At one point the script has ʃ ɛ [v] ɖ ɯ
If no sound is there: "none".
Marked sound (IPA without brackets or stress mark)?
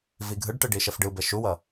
f